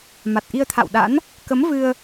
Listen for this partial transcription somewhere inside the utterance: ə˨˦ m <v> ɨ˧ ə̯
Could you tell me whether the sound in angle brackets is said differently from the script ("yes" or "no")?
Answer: no